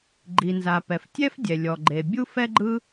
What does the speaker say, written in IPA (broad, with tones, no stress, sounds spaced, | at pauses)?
ɡ͡ǃ i˩ n z a˩ p ɛ˩ f tʲ ɛ˥ f dʲ ɛ˩ lʲ ɔ˩ ɡ͡ǃ e˩ bʲ u˥ f ɛ˥ ɡ͡ǃ ɯ˥